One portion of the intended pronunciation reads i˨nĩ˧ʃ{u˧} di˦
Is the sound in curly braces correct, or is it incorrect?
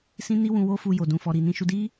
correct